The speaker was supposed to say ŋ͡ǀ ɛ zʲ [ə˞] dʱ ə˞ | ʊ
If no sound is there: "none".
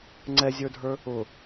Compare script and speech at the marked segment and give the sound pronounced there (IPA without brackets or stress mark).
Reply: ə˞